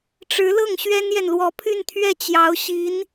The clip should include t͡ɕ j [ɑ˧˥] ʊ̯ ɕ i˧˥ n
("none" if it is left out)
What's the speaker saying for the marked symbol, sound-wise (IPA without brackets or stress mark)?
ɑ˧˥